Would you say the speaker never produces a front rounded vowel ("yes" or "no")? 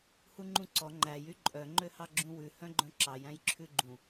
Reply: no